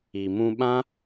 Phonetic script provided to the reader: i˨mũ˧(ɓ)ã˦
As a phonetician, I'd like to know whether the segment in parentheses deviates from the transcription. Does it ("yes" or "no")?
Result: no